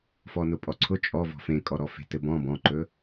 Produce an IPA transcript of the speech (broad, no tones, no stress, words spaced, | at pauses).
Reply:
fɔnʊpʼɔǀʰʊ t͡ʃʼɔ vɔ̤fẽkʼɔ ɾɔfe̤tɘbɔ̃ bɔ̃ǃɵ